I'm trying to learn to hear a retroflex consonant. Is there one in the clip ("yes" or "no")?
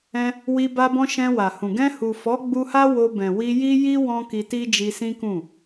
no